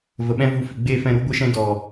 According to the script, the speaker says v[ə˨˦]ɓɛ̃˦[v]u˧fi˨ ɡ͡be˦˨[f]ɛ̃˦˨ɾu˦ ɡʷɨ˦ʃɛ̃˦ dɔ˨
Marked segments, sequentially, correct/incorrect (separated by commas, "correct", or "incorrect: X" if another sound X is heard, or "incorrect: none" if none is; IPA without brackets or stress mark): incorrect: ə˨, correct, correct